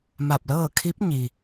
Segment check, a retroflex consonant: absent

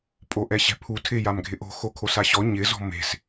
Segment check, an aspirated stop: present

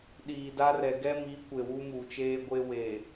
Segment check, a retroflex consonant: absent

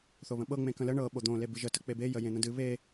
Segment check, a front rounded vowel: absent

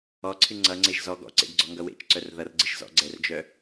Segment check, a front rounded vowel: present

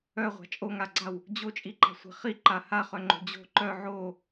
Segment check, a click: present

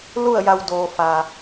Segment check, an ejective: absent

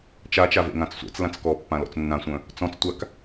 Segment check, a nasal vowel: present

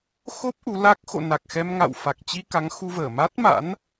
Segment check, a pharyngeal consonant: absent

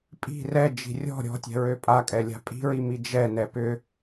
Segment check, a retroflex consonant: absent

